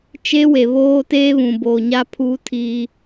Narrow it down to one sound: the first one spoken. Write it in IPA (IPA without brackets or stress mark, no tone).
t͡ʃ